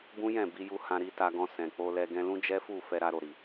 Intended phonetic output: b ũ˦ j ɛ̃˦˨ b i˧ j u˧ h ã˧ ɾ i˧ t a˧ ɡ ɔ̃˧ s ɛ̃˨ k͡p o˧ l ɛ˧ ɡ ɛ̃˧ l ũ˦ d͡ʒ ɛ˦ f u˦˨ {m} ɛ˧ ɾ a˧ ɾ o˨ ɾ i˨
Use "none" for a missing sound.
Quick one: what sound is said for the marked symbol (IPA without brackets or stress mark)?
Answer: f